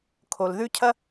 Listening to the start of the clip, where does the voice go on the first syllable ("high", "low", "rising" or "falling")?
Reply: low